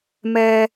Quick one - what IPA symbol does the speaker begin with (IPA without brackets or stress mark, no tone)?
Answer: m